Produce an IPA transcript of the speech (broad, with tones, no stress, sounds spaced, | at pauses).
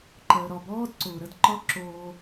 ǃ əː˨ ɾ ɒ˨ b ɔː˦ d ǀ ʊː˨ ɾ ə˧ d ǃ ɒ˦ ǁ oː˧